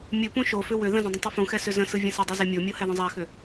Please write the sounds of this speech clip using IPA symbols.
mʲ ɯ p ũ ʃ o f ʏ w ʏ ð ə̃ z ə̃ dˤ ə̃ tˤ ɯ f ũ x ɛ s ʏ z ə̃ s ɯ vʲ ə̃ s ə dˤ i z ɛ mʲ o mʲ o h ɛ ð ə̃ zˤ æ x ʏ

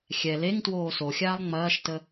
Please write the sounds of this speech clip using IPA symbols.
xʲ ɛ l e ŋ t w oː s o xʲ aː lˠ ŋ͡m ɐː ʃ t ə

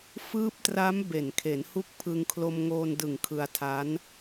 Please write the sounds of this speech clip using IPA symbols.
f ɯː˦˥ p̚ t r a˦˥ m b e˨˩ n kʰ e˩˦ n h u˦˥ k̚ pʰ ɯ˧ ŋ kʰ l o˧ m ŋ oː˧ n d ɯ˨˩ ŋ kʰ ɯ˧ a̯ tʰ a˦˥ n

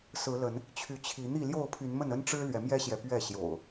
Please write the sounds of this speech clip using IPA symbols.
s ɹ̩˨˦ l ə˨˦ n | t͡ɕʰ y˨˦ t͡ɕʰ i˨˦ n̪ i˥˨ l j o˥˨ ʊ̯ pʰ y˨˦ n m ə˥˨ n ə˦ n ʈ͡ʂ ɻ̩˦ l ɥ ɛ˨˦ m j ɛ˦ ɕ j ɛ˨ p ɥ ɛ˥˨ ɕ j o̰˨˩ ʊ̯

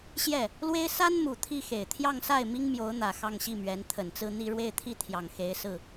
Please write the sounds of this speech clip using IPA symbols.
ɕ j ɛ˥˩ | l w e˥ ɪ̯ s a˥ n m u˨˩ t̪ʰ i˥˩ x e˨˩ ɪ̯ t̪ʰ j ɑ˥˧ ŋ s a˥˩ ɪ̯ m i˥ ŋ m j o˧˥ ʊ̯ n̪ ä˨˩ x ɑ˥˧ ŋ ɕ i˥˩ m ɥ ɛ˧˥ n t̪ʰ ə˨˩ n t͡s ɹ̩˥˧ n̪ i˥˧ ɻ w e˥˧ ɪ̯ t̪ʰ i˥˩ t̪ʰ j ɑ˨˩ ŋ x e˧˥ ɪ̯ s ɹ̩˥˩

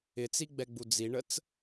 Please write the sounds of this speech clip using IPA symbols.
ɪ t͡s i ɡ͡b ɛ ɡ͡b u d͡z i ɳ ə t͡s

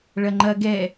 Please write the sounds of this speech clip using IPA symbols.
ɭ ɐ ŋ͡ǃ ɐ ɡ ɛ

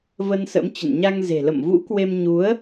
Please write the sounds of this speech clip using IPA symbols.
v ə˧ n s ə̰˧˥ m t͡ɕ ə̰˧˨ n ɲ a˧ ŋ z e̤˨˩ l ə̰˧˨ m v ṵ˧˥ k w e˧ m ɲ u˨˦ ə̯

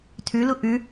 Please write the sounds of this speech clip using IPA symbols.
tʰ ʉ l u ʔ ʉ

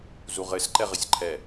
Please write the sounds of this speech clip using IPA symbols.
z u ʁ ɘ s ǃ ɛ ʁ ɘ sʲ ǃʰ ɛ

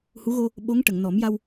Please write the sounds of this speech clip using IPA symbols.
h u˧˥ ɣ o˧ | ɓ o˧˥ ŋ ʈ ə˨˩˨ ŋ n ɔ˨˩˦ m j a˧ w

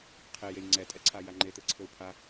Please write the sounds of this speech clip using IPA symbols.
qʰ e j e j ŋ͡ǀ ɛ tʼ ɛ ǀʰ a j a ŋ͡ǃ e t̪ ɘ ǀʰ ɘ u̯ pʰ a

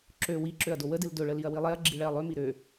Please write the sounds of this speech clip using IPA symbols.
ǁ ø w i ǁ ø ɐ̯ d o w ə d ɨ l d ɵ ɭ ə l i ɐ̯ w i lˠ ɛ ɐ̯ ɡ͡ǁ i ɭ ɛ ɐ̯ lˠ ø m i ɾ ø

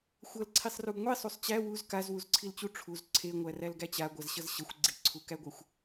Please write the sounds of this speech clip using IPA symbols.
xʷ ʌ l ǀʰ i sˤ r u ɡ ŋʷ i sˤ u sˤ t͡ɕ æ w u z k a z w u z ǀʰ i l t͡ɕ u ʈ͡ʂʰ u z ǀʰ e ŋʷ æ r æ l ɡ æ t͡ɕ a ɡʷ a z ɕ ʌ z ɕ ʌ xʷ ɡ͡ǀ i ǀʰ u k æ ɡʷ æ xʷ

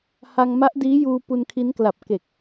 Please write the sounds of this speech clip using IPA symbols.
h a˧ ŋ m a˦˥ ʔ d iː˦˥ j uː˧ p u˧ n kʰ i˦˥ n k l a˨˩ p̚ k e˨˩ k̚

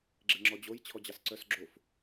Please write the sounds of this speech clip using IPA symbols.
ɡ͡ǁ e ŋ͡ǁ ɔ d͡ʑ o j t͡ɕʰ ɔ d͡ʑ ɑ s ǀ œ s ɡ͡ǁ o f

